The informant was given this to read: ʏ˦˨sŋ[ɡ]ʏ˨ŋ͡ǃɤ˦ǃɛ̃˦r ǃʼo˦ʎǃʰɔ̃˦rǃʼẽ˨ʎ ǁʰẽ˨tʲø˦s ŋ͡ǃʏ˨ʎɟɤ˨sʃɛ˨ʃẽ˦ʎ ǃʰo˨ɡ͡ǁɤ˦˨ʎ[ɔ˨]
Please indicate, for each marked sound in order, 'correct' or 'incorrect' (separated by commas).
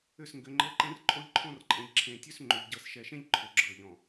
correct, incorrect